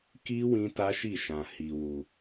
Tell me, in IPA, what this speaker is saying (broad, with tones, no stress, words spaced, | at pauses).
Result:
ki˦ wĩ˦ ta˦ʃi˦˨ʃã˧ hi˧wu˧